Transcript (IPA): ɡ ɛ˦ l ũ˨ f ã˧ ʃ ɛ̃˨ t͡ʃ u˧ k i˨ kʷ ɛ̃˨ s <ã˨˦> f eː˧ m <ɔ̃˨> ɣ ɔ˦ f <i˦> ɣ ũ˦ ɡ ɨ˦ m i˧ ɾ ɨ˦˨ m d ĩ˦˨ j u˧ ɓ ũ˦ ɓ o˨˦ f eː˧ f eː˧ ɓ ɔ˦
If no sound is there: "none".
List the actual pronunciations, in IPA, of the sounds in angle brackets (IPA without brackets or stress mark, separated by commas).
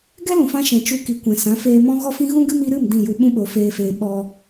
ã˨˦, ɔ̃˦, ĩ˦